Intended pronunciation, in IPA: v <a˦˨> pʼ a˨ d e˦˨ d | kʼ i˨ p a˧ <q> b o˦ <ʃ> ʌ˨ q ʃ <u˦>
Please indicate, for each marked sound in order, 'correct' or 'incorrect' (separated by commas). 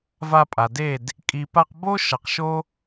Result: incorrect, correct, correct, incorrect